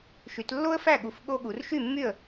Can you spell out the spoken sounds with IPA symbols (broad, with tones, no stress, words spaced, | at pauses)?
ʃy˨˦tlːo˥ə̯fæ˥˨ ɠu˨˦f ɠo˥ɠu˨˦r ʃy˥˨mːy˥˨ə̯